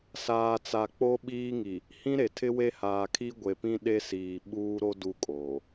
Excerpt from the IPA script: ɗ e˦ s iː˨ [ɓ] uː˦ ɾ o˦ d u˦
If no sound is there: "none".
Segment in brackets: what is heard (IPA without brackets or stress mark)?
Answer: ɓ